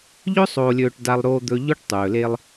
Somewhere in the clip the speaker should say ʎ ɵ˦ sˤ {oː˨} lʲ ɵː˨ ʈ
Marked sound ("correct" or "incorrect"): correct